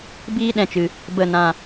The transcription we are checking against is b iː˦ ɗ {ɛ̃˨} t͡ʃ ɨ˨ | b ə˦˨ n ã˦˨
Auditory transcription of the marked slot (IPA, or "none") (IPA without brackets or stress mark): ɛ̃˨